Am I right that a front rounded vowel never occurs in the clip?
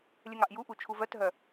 no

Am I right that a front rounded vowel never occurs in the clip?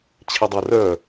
no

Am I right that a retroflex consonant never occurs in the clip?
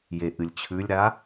yes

